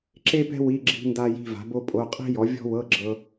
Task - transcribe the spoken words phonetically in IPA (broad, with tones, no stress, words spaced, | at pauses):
ǁe˥pɛ̤˥ wi˧˥˧ ɡ͡ǁi̤˥nda˥ ji̤˧˥˧va̤˨˥bo˥pʼo˧˥˧ qʼi̤˥jɔ˨˥vʲɔ̤˥wɤ˧˥˧ ɡ͡ǁɤ˥